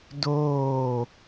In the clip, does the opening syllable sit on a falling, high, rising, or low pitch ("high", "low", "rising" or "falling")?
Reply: falling